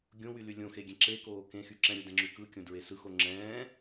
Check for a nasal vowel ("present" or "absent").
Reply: present